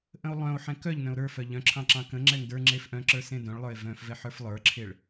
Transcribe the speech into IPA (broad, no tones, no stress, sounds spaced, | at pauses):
ʔ ə̃ o̯ lˠ œ̃ o̯ ħ ɛ̃ k œ ʎ n œ̃ o̯ ɾ ə˞ f œ ʎ œ̃ ǁʰ ɑ̃ ǁ ɑ̃ k ə̃ ŋ͡ǁ ɛ ŋ d ə˞ ŋ͡ǁ e f ʔ œ̃ ǁ ə˞ s ẽ d œ̃ ɭ lˠ ə˞ e̯ v œ̃ f v ɛ ħ ə˞ f lˠ ə˞ ǁʰ e ɭ